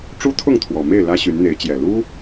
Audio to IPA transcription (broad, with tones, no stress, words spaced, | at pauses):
ʈ͡ʂu˦t̪ʰʊ˥˨ŋt̪ʰwɔ˨˩me˥˨ɪ̯ lä˦ɕy˨˦nn̪e˨˦ɪ̯t͡ɕjɛ˨˩ lu˦